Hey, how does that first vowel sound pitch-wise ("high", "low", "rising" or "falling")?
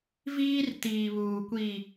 high